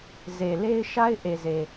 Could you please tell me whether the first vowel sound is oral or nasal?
oral